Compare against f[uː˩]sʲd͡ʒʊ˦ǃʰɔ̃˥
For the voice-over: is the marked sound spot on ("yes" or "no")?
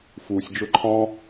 yes